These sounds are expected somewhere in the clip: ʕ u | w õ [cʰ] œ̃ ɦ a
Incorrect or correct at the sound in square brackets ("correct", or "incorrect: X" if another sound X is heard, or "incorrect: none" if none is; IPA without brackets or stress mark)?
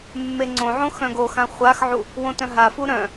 incorrect: t